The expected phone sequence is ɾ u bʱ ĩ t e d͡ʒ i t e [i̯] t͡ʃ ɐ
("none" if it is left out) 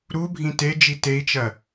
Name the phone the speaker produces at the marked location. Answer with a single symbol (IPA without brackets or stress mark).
i̯